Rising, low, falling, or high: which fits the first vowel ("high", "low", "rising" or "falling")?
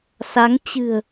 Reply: rising